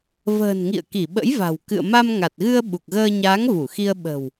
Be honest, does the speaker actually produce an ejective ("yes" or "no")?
no